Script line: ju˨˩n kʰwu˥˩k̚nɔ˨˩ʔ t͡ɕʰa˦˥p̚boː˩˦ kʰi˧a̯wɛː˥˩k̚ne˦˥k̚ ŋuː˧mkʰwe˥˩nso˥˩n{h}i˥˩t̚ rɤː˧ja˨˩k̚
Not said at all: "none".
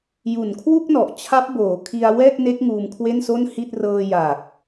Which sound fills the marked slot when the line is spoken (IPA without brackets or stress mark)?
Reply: h